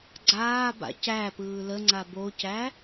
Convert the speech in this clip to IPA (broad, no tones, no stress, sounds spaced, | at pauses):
ɡ͡ǀ aː b a̰ c æ p ɯː l ə ŋ͡ǀ a b o c æ